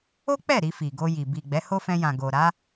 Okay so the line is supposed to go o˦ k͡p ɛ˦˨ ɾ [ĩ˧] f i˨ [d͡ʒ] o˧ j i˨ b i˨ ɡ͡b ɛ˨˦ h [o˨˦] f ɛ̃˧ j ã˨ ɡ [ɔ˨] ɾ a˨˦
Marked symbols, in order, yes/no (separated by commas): no, no, no, no